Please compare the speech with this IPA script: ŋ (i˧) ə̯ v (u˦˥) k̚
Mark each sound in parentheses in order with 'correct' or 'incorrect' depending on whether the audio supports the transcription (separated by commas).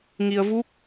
correct, correct